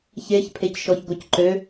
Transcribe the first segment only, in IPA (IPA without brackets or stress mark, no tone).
ç